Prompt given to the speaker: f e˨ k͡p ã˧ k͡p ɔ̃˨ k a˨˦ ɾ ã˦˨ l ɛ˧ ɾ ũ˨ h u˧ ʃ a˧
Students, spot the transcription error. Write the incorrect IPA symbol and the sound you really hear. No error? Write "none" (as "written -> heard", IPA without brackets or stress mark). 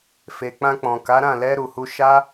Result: ũ˨ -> u˨